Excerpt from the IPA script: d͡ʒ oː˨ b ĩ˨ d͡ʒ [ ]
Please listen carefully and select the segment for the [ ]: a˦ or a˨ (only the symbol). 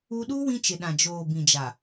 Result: a˨